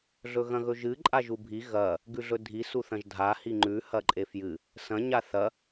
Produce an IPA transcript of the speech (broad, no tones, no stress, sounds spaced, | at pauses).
ɮ ɵ ɣ ɐ̃ ɣ ɵ ʒ ɨ ǃʼ a ʒ u bʱ i ɣ ɐ | ɡ ʉ ɮ ɵ dʱ i s u θ ɐ̃ ʒ dʱ a h i ŋ͡ǃ ʉ h ɐ ǃʼ e f j ɨ | s ɐ̃ ɲ a θ ɐ